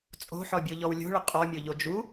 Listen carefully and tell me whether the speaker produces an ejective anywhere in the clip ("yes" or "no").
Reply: yes